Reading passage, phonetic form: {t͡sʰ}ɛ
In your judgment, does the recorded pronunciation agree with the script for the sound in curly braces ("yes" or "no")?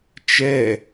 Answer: no